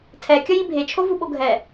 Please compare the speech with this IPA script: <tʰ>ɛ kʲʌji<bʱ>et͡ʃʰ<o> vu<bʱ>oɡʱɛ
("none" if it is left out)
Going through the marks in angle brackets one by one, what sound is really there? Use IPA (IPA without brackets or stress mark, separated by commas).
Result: tʰ, bʱ, o, ɓ